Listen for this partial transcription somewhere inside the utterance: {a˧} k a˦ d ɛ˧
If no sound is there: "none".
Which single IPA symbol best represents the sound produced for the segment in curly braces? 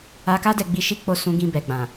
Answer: a˧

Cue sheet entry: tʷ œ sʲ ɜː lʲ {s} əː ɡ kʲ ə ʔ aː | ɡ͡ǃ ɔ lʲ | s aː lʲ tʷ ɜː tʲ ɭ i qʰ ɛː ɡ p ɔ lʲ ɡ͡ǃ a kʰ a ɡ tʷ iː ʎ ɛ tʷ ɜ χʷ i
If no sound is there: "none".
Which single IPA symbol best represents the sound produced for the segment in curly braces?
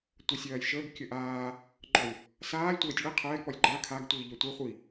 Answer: ʃ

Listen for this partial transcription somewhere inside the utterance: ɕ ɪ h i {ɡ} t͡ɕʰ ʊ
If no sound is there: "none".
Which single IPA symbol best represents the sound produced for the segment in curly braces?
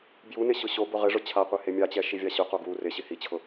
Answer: none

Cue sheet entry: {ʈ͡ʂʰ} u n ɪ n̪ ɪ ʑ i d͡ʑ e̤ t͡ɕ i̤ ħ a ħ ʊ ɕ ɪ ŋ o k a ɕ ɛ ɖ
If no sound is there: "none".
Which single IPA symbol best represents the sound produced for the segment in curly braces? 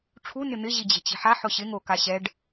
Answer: ʈ͡ʂʰ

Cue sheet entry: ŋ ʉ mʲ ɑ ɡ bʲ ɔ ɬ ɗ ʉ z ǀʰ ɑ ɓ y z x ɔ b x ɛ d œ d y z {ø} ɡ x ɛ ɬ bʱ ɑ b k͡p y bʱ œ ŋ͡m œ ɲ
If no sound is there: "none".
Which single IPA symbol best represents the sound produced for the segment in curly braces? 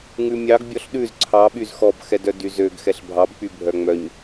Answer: ø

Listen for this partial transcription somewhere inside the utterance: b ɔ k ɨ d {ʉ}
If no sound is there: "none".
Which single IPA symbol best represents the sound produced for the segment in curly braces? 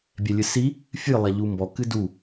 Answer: u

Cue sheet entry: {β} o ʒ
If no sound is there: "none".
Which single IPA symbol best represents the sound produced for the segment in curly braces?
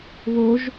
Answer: β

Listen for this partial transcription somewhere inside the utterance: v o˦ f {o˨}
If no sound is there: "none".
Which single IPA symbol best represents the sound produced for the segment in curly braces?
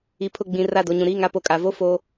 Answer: o˦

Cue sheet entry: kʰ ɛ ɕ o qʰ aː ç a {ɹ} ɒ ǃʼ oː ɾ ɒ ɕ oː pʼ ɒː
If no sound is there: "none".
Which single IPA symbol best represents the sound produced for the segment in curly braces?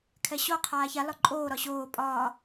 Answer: l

